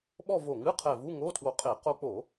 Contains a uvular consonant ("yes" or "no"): yes